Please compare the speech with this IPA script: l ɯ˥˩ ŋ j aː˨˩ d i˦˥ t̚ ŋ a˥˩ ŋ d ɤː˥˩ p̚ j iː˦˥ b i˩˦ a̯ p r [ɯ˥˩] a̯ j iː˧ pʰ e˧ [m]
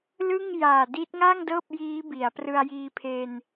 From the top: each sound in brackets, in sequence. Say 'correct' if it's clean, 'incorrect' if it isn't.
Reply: incorrect: ɯ˧, incorrect: n

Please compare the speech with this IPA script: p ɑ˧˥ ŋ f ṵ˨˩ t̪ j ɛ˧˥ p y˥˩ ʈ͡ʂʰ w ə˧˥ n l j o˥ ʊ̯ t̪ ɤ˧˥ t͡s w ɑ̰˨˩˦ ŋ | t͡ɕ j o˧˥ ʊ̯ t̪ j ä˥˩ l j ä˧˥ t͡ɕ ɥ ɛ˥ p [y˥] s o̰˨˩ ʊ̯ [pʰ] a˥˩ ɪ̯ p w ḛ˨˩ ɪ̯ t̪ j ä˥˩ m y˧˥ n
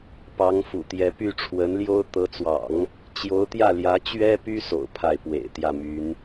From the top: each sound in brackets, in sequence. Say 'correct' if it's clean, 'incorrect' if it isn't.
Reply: correct, correct

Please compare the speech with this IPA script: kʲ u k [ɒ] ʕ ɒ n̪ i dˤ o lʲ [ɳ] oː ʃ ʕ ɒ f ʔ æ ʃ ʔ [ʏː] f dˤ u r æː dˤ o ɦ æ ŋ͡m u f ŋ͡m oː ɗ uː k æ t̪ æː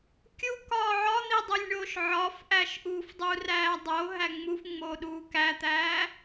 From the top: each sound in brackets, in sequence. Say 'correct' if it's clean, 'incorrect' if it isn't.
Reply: incorrect: ɒː, correct, incorrect: uː

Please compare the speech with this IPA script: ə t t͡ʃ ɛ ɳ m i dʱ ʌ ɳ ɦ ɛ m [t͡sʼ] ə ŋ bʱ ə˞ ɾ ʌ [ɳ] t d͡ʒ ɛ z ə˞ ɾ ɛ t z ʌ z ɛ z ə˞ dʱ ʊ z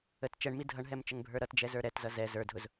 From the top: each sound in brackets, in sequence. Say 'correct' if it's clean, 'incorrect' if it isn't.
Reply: incorrect: t͡ʃ, incorrect: none

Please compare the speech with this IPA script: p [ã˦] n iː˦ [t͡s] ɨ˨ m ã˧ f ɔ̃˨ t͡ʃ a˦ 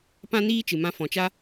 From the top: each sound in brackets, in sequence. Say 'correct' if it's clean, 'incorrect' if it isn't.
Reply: correct, incorrect: t͡ʃ

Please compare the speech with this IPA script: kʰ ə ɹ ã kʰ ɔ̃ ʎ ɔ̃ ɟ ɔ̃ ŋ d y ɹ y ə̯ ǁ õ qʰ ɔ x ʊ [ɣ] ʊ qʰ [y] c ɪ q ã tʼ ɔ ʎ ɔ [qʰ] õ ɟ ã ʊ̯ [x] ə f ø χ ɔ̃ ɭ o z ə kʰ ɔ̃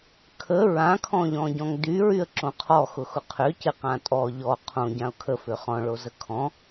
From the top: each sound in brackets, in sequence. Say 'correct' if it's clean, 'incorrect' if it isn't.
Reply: incorrect: x, incorrect: ʏ, correct, incorrect: kʰ

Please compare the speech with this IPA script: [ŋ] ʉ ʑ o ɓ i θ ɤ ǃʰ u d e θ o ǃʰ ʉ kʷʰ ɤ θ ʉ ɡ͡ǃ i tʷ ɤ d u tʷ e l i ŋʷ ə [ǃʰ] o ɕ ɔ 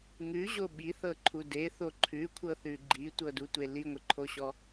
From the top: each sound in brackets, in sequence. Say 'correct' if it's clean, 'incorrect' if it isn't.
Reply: correct, correct

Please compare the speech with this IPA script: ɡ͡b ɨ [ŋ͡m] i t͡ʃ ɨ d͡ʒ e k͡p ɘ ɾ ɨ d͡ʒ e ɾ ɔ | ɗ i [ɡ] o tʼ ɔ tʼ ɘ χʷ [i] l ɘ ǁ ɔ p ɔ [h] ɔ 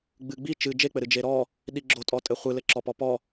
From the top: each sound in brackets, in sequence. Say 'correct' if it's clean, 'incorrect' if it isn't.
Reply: incorrect: ɡ͡b, incorrect: ɡ͡ǁ, incorrect: ɨ, incorrect: p

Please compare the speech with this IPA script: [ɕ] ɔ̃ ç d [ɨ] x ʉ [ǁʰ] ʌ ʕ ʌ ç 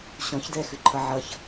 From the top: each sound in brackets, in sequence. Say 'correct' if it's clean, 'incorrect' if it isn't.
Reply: correct, incorrect: ɛ, incorrect: ǃʰ

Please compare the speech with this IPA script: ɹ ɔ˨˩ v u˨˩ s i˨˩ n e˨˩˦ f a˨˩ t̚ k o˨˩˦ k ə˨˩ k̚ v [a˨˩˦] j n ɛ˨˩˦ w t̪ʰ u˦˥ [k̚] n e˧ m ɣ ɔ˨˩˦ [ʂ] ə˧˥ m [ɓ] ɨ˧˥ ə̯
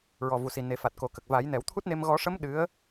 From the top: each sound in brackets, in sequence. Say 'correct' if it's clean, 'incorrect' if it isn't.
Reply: correct, incorrect: t̚, correct, incorrect: ɗ

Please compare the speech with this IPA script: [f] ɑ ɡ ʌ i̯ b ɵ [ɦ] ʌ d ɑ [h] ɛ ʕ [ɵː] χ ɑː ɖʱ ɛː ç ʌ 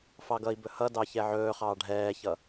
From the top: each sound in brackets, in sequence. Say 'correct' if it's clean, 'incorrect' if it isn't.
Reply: correct, incorrect: h, incorrect: ç, correct

